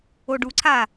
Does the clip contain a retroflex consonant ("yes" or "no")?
yes